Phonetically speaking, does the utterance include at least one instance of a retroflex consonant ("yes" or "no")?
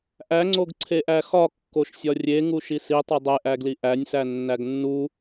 no